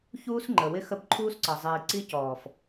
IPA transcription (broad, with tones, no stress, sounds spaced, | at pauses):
ç uː˦ s ŋ͡ǃ ə˨ w ɪ˦ x ə˦ b ǃʰ uː˦ s ǀ ʌ˨ zˤ iː˨ ǀ i˦ c ɔː˨ f